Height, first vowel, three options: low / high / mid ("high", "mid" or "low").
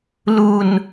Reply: high